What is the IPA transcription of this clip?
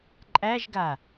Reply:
ǃʼ æ ʒ ɡ a

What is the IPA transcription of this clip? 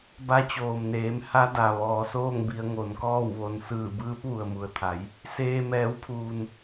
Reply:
b a˧˥ t͡ɕ oː˩ m n eː˩˧ m h a˧˥ d a˩ ʋ ɔː˩˧ s oː˥˨ ŋ b i˩˧ ə̯ ŋ o˩˧ n k ɔː˥˨ w ʋ o˧ n s ɯː˧˩ b ɯː˧˥ p̚ ʋ u˩ ə̯ m u˩ ə̯ t̪ʰ a˩˧ j | s eː˧ m ɛː˩˧ w pʰ uː˩ n

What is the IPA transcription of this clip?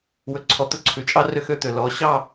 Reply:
w ɵ˨ ǀʰ ɔ˨ t̪ ɵ˦ ǀʰ ʉ˨ t͡ʃʼ ɑ˦ r ø˦ x ø˦ t̪ ø˨ l ɔ˨˦ ɕ ɑ˦˨

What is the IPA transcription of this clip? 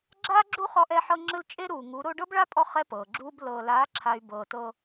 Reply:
ɡ͡ǁ aː˦ ɡ͡ǁ u˦ χ ɔ˧ ʔ ɛ˧ ħ ɤ˧ ŋ͡ǁ ɯ˧ l t͡ʃʼ e˦ ɾ uː˨ ŋ u˨˦ ɾ o˧ ɖ ɤ˦ b ɭ a˦ pʼ ɔ˧ χ ɛ˦ p ɤː˨ ɡ͡ǁ uː˦ b l ɤː˨ l aː˨˦ ǁʰ a˨ y̯ b ɤː˧ t ɤ˧

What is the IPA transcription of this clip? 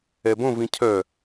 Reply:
ɛ b õ v ĩ cʰ œ

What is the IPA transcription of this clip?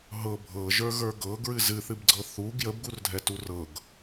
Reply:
ɦ ɤ bʱ ɤ ʒ ə˞ ɣ ə˞ ɡ ɤ ɡ ɹ ɨ z ɨ θ ɨ b ɡ͡ǀ ɤ θ u ɡ j ə b ɡ u r dʱ ɛ t u r ɤ ɡ

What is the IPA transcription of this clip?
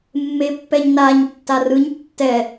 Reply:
mː e pː ɛ ɲ n a ɲ tː a r ɯ ɲ tː ɛ

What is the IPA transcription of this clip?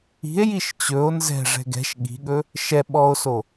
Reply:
i̤ e̯ j i ʃ t͡ɕ ɵ o̯ n z ɛ̤ ʐ ɛ̤ ɡ ɛ̤ ʃ ɠ i̤ ɠ ɵ | ʃ ɛ ɓ ɔ o̯ s o

